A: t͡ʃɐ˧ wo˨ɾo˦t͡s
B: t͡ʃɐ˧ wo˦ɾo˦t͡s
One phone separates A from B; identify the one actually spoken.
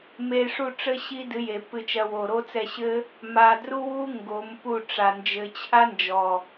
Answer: A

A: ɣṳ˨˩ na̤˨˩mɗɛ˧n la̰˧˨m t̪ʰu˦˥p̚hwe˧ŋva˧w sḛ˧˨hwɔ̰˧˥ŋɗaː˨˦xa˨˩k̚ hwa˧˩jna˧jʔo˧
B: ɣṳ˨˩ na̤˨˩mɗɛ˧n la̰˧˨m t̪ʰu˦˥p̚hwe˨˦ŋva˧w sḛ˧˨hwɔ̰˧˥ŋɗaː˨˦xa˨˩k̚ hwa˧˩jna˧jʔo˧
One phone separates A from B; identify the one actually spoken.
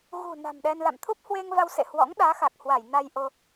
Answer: A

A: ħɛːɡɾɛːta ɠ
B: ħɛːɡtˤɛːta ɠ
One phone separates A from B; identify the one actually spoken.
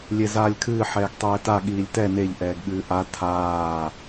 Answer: B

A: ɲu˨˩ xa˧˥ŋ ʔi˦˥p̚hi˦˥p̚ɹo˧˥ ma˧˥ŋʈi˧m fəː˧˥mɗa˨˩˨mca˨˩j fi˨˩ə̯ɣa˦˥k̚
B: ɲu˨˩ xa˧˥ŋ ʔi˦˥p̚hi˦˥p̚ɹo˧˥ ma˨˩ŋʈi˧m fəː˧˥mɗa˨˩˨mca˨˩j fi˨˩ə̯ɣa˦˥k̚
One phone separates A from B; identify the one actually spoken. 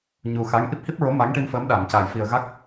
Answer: A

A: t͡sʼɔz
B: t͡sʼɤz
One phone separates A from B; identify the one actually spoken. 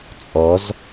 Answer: A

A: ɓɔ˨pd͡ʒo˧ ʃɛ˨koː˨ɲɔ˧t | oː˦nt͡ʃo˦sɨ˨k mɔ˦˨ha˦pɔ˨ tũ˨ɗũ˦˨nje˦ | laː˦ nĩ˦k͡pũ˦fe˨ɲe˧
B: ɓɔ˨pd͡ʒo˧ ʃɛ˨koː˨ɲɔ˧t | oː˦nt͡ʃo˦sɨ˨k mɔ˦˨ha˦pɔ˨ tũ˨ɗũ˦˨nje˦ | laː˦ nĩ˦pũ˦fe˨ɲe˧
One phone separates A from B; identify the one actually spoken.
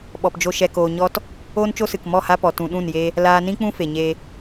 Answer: A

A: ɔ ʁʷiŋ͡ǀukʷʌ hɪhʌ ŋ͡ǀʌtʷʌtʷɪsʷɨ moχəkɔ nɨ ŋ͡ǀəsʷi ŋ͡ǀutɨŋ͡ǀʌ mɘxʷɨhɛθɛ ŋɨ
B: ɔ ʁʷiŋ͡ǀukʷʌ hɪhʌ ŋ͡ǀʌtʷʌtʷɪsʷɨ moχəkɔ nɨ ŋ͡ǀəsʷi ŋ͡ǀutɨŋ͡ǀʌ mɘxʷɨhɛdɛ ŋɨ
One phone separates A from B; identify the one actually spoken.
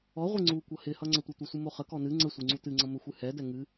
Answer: B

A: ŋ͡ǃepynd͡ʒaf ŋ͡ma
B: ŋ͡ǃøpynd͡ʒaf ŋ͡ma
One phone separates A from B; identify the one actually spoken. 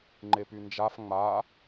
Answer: A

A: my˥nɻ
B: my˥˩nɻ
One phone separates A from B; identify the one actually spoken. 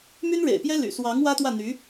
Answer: A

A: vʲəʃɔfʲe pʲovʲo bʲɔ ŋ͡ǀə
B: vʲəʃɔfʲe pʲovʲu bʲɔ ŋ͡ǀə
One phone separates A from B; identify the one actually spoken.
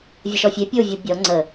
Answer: A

